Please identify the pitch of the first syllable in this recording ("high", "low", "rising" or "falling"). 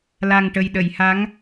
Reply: low